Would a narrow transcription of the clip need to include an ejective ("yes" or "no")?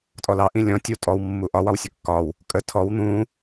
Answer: yes